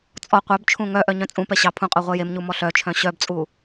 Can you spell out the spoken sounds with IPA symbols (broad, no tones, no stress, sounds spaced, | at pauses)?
t͡sʼ ɔ qʷ œ b t͡ʃʰ ũ ŋ œ ʔ œ ɲ œ̃ t͡sʼ ũ p ɛ ɕ ɑ pʰ ũ qʼ œ ʁʷ ɛ j e m ɲ u m ɔ ɬ œ t͡ʃʰ œ̃ ɕ œ b t͡sʼ u